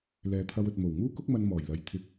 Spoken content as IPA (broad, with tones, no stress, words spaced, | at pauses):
lɛː˨˧t̪ʰɐ˧wɵ˨t̚ mo˨˩wŋuː˥kʊ˥k̚mɐ˧n mɔː˨˩jlɐ˨˧j t̪ʰɪ˧k̚